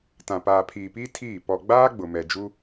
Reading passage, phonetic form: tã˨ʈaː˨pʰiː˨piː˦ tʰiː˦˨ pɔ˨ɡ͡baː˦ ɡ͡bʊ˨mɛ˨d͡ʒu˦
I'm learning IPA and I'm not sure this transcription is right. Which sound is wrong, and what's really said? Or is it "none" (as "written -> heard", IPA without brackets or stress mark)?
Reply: ʈ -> p